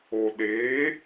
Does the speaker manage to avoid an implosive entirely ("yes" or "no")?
no